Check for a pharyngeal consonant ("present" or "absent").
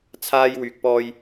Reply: absent